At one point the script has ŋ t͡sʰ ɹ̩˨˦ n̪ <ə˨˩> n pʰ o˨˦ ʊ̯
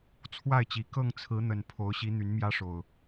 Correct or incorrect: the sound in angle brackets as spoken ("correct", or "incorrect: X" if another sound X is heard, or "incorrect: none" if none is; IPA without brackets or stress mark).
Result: correct